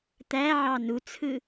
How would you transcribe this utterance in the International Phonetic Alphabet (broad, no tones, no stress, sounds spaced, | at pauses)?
t̪ æ ʕ ɑ n u t͡sʰ ɯ